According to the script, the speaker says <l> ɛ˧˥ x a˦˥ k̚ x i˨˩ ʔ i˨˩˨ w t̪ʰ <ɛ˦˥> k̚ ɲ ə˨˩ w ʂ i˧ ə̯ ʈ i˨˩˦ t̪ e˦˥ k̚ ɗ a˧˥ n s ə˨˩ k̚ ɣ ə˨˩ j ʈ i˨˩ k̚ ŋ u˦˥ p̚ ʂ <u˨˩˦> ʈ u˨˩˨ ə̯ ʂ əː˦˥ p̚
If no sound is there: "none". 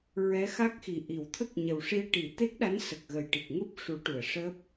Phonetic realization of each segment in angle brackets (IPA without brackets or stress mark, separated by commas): ɹ, ə˦˥, u˨˩˦